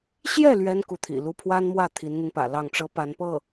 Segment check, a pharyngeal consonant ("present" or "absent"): absent